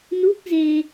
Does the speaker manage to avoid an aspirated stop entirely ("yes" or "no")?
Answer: yes